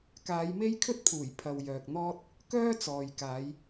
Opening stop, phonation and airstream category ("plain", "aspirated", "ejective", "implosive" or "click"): plain